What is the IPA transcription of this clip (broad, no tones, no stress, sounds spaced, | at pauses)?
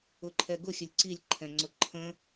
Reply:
ʊ ǃʰ ɛ ɡ ʊ xʲ ə lʲ ǀ i lʲ ǃʰ ɛ̃ ŋ͡ǀ ʊ ǃʰ ə̃